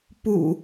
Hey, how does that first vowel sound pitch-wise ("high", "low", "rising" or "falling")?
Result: low